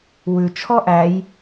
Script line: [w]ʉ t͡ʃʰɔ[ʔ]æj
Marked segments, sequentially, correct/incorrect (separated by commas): correct, correct